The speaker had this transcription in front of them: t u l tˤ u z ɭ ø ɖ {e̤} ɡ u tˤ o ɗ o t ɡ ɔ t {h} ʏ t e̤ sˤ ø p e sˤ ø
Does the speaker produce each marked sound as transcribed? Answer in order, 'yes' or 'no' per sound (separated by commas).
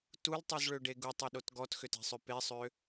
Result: no, no